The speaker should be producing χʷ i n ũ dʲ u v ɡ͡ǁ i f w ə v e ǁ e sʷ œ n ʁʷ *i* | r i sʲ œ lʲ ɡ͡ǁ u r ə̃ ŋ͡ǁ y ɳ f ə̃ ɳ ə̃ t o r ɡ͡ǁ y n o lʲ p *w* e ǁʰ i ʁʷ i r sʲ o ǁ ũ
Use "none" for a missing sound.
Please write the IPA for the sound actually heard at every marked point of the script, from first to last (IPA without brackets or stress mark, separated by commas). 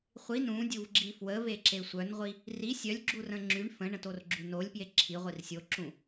i, j